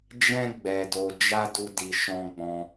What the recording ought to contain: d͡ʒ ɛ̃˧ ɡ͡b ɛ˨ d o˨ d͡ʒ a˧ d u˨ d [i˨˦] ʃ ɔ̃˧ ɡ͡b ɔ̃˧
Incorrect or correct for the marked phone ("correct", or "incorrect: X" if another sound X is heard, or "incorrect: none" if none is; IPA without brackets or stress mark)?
incorrect: i˨